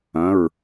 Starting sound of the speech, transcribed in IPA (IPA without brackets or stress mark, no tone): ɐ̃